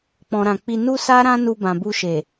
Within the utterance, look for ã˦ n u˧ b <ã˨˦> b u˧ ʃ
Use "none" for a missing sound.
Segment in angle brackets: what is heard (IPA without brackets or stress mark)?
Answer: ã˨